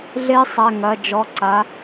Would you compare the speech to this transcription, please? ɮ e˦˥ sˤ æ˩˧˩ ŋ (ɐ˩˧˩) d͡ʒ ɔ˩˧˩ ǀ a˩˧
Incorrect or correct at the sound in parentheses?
correct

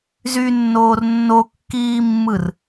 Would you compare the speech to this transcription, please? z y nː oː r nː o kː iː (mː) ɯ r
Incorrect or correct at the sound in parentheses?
correct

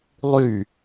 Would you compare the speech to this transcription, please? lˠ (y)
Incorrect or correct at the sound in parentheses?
correct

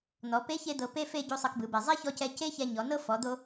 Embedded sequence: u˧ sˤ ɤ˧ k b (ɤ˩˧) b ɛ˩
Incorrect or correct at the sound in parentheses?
incorrect: ɯ˩˧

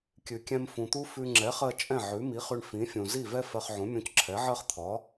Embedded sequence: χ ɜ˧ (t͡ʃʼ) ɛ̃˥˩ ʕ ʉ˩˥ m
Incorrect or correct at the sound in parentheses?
correct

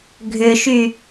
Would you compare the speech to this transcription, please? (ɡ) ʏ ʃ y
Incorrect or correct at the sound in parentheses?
incorrect: ɡʱ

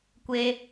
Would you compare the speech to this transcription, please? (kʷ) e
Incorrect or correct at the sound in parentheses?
correct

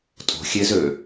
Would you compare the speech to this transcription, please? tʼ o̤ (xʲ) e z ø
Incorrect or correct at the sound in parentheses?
correct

